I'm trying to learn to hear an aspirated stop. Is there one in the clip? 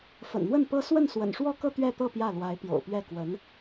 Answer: no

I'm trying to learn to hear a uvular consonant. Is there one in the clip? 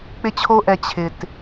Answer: no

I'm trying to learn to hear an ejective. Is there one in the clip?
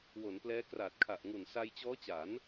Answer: no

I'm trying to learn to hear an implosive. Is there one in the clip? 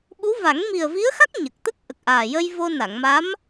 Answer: yes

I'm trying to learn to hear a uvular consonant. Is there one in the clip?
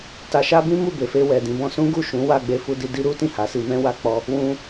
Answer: no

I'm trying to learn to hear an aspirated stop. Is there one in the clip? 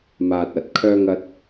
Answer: yes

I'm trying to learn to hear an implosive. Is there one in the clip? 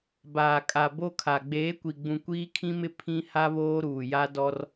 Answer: no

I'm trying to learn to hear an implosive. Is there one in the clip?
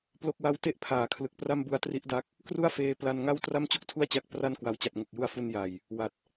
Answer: no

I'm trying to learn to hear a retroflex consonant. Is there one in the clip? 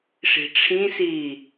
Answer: yes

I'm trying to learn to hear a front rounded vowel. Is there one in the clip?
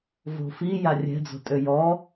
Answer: yes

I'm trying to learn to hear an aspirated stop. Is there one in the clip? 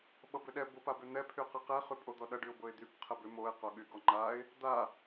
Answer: yes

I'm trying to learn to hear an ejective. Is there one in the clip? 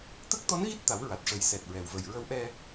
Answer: no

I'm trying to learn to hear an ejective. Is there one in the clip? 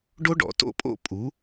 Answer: yes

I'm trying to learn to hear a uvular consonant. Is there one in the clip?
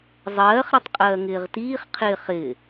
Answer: yes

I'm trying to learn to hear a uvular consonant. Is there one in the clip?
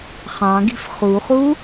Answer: yes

